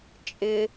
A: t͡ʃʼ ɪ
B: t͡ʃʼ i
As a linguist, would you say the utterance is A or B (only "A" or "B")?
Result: A